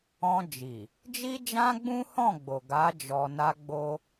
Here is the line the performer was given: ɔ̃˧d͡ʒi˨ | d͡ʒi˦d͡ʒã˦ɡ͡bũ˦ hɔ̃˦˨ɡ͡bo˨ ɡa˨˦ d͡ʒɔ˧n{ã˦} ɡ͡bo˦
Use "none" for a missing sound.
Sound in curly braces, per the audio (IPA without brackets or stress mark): a˦